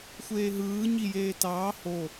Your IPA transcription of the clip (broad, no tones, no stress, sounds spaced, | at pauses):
xʷ eː ɦ ɯː ɲ i j eː t ɑː h o